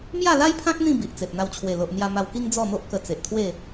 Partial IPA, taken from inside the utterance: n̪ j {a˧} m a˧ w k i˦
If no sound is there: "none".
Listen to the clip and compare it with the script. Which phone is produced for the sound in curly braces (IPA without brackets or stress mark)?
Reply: a˧